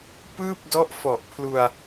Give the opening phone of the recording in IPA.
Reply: p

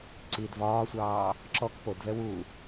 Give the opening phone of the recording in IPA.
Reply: ǀ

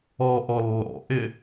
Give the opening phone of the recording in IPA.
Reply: ɔ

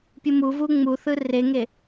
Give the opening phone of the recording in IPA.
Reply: pʲ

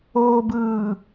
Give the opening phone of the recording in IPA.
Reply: oː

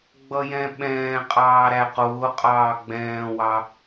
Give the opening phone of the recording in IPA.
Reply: ɡ͡b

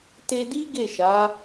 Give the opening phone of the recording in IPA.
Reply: t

